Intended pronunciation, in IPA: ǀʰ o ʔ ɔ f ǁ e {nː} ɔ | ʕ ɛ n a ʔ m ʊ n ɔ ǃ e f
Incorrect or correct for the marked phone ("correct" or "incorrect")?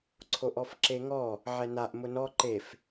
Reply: incorrect